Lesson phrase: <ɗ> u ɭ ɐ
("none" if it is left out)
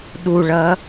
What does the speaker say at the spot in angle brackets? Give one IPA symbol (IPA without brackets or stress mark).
ɗ